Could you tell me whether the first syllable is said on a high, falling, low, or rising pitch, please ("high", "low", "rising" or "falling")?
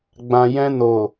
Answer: low